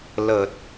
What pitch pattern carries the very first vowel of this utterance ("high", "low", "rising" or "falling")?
low